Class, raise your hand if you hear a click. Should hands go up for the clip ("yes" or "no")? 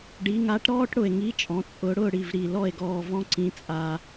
yes